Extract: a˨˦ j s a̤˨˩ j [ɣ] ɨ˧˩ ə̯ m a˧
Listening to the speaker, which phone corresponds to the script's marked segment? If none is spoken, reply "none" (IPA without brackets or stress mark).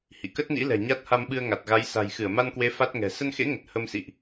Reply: x